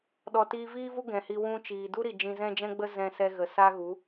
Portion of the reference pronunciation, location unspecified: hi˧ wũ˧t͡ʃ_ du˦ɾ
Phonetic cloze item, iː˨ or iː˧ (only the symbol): iː˨